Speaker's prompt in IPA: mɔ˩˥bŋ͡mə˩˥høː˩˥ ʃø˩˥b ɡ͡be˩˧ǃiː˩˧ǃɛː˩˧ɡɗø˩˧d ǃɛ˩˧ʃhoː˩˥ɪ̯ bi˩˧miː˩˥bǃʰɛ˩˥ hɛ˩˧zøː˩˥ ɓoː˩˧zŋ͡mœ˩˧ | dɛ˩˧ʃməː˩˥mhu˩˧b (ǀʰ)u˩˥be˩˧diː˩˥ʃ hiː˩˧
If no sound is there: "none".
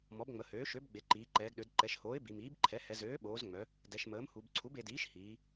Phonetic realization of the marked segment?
ǀʰ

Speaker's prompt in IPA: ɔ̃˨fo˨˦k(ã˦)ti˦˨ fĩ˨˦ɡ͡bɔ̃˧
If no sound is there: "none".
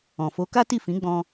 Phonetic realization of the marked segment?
a˦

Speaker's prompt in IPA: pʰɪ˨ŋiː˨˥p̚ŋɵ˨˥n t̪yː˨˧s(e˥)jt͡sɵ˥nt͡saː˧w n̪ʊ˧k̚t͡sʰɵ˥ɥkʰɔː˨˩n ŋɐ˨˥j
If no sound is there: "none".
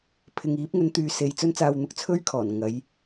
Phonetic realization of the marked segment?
e˨˧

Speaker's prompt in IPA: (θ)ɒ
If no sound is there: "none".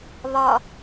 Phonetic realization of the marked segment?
β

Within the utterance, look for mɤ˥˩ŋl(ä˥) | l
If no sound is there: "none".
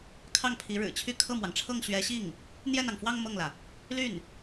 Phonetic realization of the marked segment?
ä˩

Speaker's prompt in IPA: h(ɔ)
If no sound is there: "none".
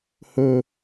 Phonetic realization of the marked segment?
ɵ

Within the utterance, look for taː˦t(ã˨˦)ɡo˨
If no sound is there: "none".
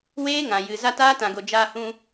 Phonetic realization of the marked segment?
ã˨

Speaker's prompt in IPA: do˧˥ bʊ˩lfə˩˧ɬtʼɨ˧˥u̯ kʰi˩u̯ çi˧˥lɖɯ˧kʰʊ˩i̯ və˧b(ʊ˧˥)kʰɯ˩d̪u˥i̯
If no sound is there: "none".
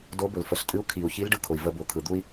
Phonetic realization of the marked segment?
ʊ˩˧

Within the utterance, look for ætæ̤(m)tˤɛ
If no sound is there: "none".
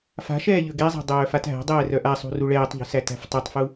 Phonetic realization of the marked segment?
f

